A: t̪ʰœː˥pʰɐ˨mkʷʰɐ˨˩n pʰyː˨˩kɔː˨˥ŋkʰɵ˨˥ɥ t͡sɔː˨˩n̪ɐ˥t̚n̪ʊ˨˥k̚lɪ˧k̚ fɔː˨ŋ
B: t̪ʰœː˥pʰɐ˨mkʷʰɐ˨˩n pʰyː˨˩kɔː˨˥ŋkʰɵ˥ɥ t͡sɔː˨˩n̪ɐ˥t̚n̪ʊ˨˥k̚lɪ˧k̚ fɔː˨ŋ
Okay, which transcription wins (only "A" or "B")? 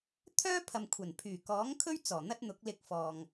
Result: B